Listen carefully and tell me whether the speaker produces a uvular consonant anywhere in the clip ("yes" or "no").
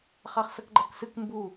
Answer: yes